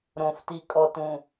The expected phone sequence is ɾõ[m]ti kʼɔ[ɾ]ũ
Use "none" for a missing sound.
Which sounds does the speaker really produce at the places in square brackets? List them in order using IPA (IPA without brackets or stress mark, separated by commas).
f, t